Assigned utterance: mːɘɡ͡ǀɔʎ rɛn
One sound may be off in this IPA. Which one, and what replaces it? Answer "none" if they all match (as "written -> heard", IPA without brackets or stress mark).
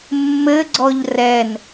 none